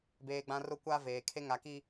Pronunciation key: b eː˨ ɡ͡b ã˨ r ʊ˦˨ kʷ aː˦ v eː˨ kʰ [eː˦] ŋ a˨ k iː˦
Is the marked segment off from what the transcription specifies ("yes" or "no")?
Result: yes